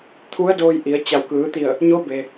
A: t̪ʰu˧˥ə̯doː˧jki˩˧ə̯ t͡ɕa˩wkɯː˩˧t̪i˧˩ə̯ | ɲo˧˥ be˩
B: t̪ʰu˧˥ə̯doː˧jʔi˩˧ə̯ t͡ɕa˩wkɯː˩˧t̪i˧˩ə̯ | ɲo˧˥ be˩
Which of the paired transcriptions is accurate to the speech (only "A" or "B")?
B